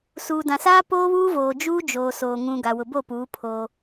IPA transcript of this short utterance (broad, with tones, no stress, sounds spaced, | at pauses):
s uː˨ d ã˨ s aː˦ p oː˦ β uː˦ v oː˨ d͡ʒ uː˦ d͡ʒ oː˨ s oː˨ ŋ ũ˨ ɡ a˨ w ʊ˨ b o˦˨ p uː˨˦ pʰ oː˦